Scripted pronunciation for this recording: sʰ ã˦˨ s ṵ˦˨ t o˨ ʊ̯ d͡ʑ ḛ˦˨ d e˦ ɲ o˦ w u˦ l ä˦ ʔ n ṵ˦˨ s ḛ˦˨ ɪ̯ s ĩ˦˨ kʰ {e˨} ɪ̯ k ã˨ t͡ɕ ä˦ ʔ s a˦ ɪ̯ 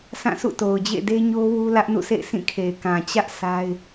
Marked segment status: correct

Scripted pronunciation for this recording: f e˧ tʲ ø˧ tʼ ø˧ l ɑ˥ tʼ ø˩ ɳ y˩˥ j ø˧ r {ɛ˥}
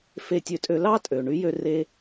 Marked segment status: incorrect: e˥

